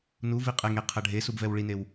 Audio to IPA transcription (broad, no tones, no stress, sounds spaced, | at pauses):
n u v i qʼ ɛ ŋ e qʰ ɐ ɖʱ e s u b v ɛ w ɭ i n e w